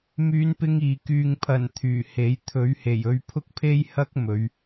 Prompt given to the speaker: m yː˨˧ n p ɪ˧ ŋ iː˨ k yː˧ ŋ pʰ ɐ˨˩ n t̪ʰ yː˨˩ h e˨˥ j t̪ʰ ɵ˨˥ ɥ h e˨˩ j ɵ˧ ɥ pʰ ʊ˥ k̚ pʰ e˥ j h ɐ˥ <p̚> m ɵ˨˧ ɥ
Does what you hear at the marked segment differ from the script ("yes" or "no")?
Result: yes